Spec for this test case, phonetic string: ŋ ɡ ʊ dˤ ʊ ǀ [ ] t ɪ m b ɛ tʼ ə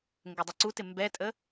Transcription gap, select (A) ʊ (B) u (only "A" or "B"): B